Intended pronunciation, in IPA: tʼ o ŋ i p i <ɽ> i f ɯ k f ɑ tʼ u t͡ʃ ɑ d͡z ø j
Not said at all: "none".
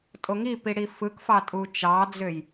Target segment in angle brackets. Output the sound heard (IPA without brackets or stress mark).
ɽ